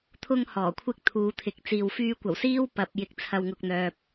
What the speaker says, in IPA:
t̪ʰʊ˥ŋ hɔː˨˩kʷʰɪ˥k̚t̪ʰuː˨˧t̪ʰɪ˨k̚ t͡siː˨w fyː˧kʷɐ˨˩w siː˥w pɐ˨p̚ jɪ˨k̚t͡sʰɐ˨wŋʊ˨k̚ n̪œː˨p̚

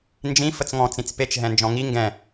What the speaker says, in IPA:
nd͡ʒĩ fət͡sŋɔ̃ t͡sĩt͡spet͡ʃ ɦɛ̃nd͡ʒɔ̃ŋi ŋɡɛ̃

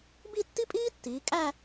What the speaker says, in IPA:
bi˥˧tːi˥pʼiː˥tːiː˩˧ kʼæ˥˧

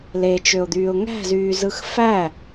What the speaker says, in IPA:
let͡ʃøʊ̯d̪yːʊ̯ ŋæ̤zyːzɯx fæ

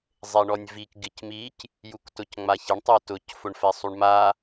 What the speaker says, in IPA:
zˤeɳɔnʲvik ɡɪcmic | juktʊcŋ͡maçɪɳ tˤʊtʊc fʊɳfɛsˤuɳma

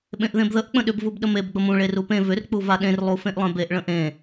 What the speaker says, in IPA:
ɓẽʔðẽbðəʔ k͡pə̃ɗʏb vubɗəmeb ɡ͡bəmũ ɭerupẽ vʏr k͡puvaɗẽr lˠufẽʔlˠẽbeʔ ɭə̃ʔẽ

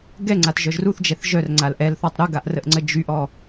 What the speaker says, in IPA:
ɡɛŋ͡ǀatʒœʒ ruθd͡ʒɛθ ʒœrŋ͡ǀal ʔɛlθɔtˤ ɾuɡaʔrəʔŋ͡ǀə d͡ʒyʔɔ

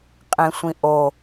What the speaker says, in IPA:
qʼẽsʷĩʔo

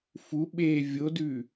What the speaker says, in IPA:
fu ɓe vʲodʉ

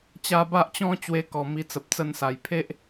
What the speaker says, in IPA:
t͡ɕa˧ba˦ʔ t͡ɕɔ̃˧ t͡ɕwe˧kɔ˨˩ mi˧t͡sə˨p̚t͡sə˥˧nsa˨˩j pʰe˦ʔ

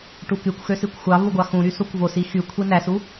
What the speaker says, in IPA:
ʈukykʷxø sikʷxʷɑvu ɡʷɑxũɾy sokʷvosi xy kʷʰinæsu

